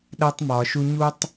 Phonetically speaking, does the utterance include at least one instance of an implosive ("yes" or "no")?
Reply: yes